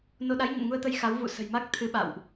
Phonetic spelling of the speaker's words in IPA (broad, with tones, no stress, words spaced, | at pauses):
no˧ ɗa˨˦jɲə̰˧˨nŋu˧ə̯t̪ə˧j xa˨˦wvṵ˧˨ sə̤˨˩jma˦˥k̚ t̪ʰɨ˨˦ ɓa̰˧˨wʔ